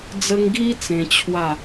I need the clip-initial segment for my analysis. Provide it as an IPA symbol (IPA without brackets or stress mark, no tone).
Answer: d͡z